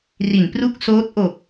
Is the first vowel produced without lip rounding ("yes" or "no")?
yes